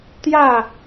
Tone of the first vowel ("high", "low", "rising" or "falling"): falling